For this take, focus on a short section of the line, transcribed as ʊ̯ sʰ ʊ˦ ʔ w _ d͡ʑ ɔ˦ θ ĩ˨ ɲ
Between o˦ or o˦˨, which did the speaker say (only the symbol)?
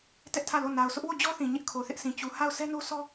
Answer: o˦˨